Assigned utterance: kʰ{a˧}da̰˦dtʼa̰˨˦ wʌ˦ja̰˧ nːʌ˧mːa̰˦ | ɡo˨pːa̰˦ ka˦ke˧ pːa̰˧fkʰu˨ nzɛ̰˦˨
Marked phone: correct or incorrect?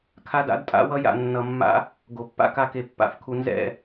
incorrect